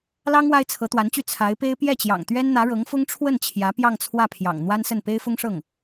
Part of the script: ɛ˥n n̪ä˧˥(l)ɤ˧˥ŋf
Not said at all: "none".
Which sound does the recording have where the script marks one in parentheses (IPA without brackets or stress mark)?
ɻ